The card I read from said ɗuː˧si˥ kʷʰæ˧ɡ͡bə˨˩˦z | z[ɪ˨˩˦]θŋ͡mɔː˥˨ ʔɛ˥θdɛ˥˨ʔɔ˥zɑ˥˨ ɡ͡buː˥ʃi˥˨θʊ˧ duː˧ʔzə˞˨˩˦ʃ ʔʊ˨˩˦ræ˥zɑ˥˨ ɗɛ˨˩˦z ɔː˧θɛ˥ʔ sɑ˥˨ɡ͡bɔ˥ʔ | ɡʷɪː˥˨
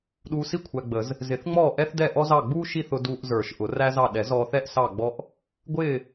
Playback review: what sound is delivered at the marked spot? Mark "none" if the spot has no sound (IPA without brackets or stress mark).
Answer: ɪ˨˩˦